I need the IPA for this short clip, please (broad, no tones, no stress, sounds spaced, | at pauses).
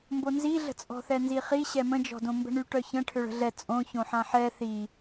m b o n z i ɮ ə̤ t͡sʼ ɔ̤ θ ɛ n z i χ i ɕ ɛ m ə̃ d͡ʒ ɔ̤ d õ m b ə̤ ɳ y ʈ œ ç ə̃ ʈʰ ø ɭ ə̤ ɮ ɛ t͡sʼ õ ç õ ħ ã ħ ɛ θ i